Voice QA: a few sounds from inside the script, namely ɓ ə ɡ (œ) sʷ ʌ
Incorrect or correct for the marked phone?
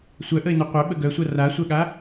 correct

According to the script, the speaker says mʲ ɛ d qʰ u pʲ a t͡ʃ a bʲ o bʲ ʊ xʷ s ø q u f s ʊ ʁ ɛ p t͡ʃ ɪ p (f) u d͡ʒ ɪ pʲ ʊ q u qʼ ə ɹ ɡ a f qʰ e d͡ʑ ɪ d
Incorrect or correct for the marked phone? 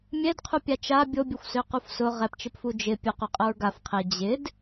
correct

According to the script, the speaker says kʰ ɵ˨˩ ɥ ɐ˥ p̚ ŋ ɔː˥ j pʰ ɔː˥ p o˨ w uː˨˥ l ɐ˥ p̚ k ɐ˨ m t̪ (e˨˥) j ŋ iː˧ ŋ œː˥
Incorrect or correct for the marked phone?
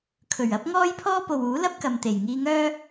incorrect: e˨˩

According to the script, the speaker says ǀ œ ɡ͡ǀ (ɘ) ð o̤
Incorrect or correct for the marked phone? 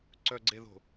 incorrect: e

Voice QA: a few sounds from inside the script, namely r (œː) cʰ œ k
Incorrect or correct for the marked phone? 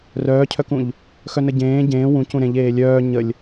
correct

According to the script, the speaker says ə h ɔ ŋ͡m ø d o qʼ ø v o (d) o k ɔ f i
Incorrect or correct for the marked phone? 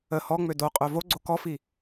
incorrect: ɡ͡ǀ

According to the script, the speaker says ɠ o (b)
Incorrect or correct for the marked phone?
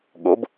correct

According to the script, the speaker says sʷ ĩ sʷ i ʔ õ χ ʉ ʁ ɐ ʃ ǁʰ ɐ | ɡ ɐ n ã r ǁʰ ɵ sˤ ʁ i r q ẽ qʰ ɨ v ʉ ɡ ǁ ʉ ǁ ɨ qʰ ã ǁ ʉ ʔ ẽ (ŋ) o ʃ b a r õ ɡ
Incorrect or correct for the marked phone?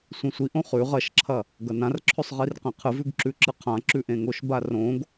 correct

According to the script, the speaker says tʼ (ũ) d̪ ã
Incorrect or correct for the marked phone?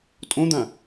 incorrect: õ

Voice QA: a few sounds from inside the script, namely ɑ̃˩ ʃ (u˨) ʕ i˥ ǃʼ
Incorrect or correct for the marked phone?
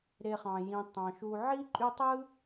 correct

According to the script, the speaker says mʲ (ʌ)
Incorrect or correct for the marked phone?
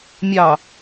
incorrect: ɑ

